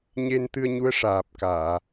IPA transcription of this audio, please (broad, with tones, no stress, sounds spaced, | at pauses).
ɲ e˧ n t̪ ɨ˧ ə̯ ɲ u˧˥ ə̯ ʂ aː˨˩ p̚ k aː˨˩˨